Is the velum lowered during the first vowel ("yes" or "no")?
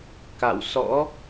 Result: no